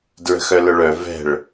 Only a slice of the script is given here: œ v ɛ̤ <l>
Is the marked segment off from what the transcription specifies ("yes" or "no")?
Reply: yes